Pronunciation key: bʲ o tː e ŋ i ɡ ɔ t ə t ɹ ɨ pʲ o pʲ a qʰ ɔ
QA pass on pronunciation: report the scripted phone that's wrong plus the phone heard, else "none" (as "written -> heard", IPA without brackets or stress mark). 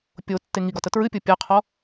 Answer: bʲ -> pʲ